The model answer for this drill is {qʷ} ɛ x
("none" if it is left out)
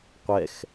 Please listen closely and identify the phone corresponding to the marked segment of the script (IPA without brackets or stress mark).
qʷ